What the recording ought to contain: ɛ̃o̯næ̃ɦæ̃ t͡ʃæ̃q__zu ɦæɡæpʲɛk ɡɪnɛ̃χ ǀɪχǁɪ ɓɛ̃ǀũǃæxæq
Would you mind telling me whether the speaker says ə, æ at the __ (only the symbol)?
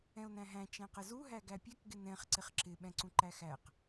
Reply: ə